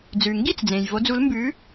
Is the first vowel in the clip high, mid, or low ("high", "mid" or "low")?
high